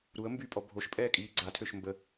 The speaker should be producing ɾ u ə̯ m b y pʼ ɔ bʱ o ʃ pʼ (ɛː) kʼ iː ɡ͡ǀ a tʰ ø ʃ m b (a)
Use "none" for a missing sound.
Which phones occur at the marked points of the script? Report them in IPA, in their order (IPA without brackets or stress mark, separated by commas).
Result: ɛː, ə